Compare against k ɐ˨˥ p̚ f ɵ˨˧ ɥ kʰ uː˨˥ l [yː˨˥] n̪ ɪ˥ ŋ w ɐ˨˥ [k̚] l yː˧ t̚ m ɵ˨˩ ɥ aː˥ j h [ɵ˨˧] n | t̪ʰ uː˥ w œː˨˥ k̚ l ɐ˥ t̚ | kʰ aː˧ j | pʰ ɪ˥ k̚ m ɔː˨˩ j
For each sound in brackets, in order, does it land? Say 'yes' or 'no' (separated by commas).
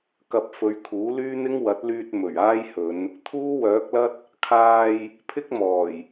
no, no, yes